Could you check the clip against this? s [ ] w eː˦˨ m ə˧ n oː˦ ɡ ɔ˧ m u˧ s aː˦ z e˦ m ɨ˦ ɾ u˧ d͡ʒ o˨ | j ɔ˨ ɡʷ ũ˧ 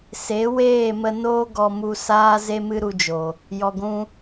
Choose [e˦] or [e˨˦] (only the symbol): e˨˦